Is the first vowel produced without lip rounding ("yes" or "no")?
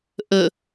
yes